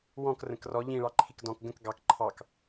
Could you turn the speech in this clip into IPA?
wɔ̃k rə̃krɔ ʎĩɭɑ ǃʰikdɔ̃k ɡə̃k ɡɑk ǃʰɑk

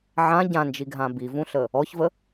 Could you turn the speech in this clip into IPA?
ʕã ɟãnd͡ʒiɡʱã bivũɬə | ɔçvə

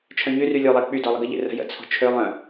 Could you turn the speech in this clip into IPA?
t͡ʃʰœ̃ɲyry lʲolˠɛ k͡pydɔ lˠəɡəʎḛ rə̤jə̰t͡sʰo̤ t͡ʃʰølˠœ̃

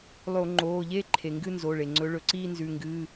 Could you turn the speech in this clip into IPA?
lˠo˧˩˧ŋ͡ǃoː˩˧˩ʎeː˥˧ǃʰe˩ ŋɡɨ˥˧nzo˩˧˩ɭe˩ŋ͡ǀɵ˨˦ ɭɵ˩ǀiː˥˧nzʉ˩˧˩ ŋɡɨː˩˧˩

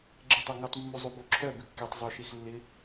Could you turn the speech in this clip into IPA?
ɡ͡ǁetˤoŋutˤ mːuzˤuboǁʰœ bɪkːetˤ zˤoʃexlːɪ

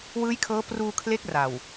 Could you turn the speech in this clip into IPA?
wɯː˦˥jkʰɤː˦˥ pruː˧kʰle˦˥k̚ ra˨˩w

